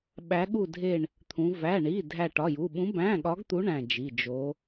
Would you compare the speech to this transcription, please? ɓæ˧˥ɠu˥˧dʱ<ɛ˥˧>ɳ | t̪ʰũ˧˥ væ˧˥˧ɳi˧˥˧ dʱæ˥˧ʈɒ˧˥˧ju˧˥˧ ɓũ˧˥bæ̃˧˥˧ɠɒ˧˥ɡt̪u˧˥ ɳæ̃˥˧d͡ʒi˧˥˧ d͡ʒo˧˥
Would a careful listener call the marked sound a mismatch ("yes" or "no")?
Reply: yes